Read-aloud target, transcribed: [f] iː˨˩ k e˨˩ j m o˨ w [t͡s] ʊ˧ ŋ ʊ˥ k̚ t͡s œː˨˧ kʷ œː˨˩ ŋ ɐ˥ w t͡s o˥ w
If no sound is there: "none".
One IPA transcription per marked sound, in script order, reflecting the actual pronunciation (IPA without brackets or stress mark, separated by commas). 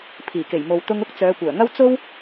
pʰ, t̪